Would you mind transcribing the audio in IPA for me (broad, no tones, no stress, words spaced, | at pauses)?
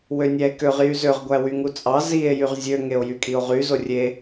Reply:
wønʲæe̯køʁ jyzøʁ ɡʷæwyŋut͡sʼɑ zie̯ jyʁzʲø ŋeo̯jykʼio̯ʁy zorʲe